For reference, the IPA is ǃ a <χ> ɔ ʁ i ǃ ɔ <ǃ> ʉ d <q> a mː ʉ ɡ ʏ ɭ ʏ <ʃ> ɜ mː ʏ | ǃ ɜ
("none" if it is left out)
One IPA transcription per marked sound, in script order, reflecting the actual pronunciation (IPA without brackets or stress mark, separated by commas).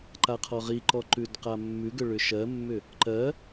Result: qʰ, ǃ, q, ʃ